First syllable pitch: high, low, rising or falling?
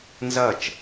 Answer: falling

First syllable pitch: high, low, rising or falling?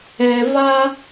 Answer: low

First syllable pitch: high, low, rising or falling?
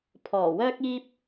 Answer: low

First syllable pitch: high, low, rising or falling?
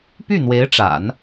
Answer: falling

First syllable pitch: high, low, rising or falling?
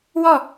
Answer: falling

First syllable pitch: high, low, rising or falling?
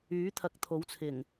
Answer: rising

